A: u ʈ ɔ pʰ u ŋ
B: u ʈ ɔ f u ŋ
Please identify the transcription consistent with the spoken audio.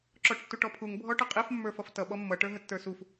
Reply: A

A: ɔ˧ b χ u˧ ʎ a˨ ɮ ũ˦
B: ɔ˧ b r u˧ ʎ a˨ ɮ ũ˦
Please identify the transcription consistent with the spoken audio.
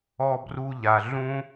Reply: B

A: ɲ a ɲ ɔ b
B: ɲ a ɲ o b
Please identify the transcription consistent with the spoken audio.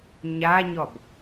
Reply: A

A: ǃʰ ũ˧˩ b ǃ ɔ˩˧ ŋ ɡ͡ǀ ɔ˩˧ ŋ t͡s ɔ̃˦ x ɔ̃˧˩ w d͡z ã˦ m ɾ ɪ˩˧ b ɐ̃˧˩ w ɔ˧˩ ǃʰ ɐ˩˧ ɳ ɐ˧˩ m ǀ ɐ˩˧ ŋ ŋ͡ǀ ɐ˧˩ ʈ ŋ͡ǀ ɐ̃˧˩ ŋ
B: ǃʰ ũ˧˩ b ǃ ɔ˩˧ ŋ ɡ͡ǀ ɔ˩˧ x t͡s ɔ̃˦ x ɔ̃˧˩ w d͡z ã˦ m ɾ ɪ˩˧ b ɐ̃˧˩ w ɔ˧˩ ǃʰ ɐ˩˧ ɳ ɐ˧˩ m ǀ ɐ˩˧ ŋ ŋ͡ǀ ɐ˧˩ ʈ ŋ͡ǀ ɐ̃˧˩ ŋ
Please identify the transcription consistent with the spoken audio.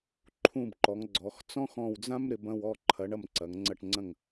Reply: B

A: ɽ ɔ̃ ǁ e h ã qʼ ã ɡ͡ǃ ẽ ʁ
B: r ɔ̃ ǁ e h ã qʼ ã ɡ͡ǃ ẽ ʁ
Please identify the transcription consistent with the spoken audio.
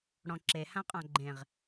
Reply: A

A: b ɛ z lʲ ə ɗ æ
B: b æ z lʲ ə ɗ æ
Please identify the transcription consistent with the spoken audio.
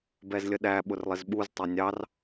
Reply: A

